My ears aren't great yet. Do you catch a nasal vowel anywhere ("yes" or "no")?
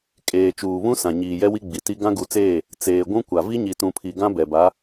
yes